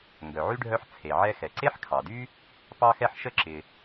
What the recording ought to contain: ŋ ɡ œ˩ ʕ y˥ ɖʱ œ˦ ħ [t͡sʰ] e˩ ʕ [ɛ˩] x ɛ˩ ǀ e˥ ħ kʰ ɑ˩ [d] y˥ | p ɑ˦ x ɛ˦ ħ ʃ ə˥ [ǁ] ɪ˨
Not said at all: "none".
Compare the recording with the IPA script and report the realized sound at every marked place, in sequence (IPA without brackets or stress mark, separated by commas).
t͡sʰ, ɛ˦, d, ǁ